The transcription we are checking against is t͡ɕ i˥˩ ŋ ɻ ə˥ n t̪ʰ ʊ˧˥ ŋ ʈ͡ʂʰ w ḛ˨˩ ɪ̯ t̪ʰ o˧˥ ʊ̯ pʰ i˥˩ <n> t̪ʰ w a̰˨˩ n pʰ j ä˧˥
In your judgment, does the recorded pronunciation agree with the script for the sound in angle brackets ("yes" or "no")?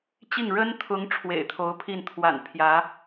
yes